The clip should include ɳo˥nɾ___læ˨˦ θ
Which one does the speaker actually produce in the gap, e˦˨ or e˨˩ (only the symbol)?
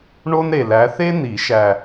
e˨˩